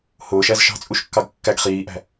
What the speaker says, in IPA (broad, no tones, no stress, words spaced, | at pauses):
hʊːʃæz ʃɑ̤t͡sʼuʃkːɑɡ kːæɡ χiːʔæ̤